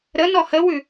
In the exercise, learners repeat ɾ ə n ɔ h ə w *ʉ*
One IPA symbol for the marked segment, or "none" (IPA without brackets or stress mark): ʉ